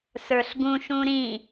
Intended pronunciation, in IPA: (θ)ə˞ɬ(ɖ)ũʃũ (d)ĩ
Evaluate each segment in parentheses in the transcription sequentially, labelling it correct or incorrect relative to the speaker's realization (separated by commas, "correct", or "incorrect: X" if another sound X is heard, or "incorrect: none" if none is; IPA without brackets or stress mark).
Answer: incorrect: s, incorrect: ɡ, incorrect: ɾ